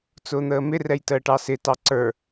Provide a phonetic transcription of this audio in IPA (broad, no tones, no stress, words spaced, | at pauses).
t͡sʊːn̪əːmɪrɛj təːʈɑsɪtɑ ǀə˞